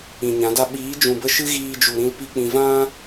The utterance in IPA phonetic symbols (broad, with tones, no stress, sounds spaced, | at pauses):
ĩ˨ ɲ ã˨˦ d a˦ ɓ iː˨˦ d͡ʒ ũ˨ b ə˦˨ ʃ ɨ˦ ɣ iː˧ d͡ʒ u˨ ɾ ĩ˧ l p i˦ k͡p ĩ˧ v ã˦